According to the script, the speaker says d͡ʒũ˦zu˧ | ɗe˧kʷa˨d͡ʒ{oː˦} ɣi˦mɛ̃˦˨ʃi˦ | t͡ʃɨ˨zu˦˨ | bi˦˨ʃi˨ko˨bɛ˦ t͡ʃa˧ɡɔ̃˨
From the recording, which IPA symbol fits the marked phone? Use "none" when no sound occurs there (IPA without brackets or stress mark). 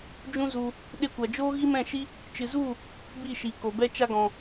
oː˦